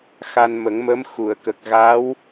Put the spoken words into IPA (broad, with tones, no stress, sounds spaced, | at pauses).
x a˧ n m ə˨˩˦ ŋ m ə˧˥ m x u˨˩˨ ə̯ k ə˨˩ k̚ ɣ a˧˥ w